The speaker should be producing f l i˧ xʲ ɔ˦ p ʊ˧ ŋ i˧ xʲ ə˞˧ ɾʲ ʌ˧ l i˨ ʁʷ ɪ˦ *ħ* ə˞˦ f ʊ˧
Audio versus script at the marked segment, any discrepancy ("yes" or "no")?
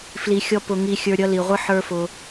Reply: no